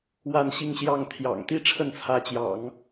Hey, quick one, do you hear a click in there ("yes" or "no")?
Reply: no